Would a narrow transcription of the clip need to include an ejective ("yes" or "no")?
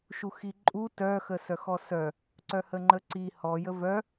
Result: yes